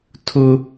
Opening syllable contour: high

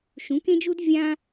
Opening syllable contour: rising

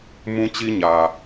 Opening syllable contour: high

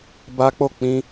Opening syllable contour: high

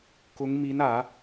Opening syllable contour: rising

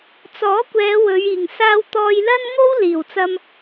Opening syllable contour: rising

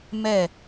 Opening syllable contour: falling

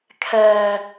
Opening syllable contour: high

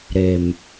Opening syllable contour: low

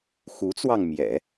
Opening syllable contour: rising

